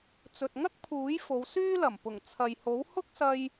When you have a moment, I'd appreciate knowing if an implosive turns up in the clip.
no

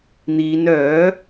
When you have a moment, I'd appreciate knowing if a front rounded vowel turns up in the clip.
yes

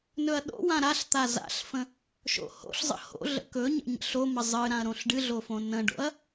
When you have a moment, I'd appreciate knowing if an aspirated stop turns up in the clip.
no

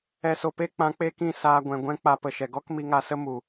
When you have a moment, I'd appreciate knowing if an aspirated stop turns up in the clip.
no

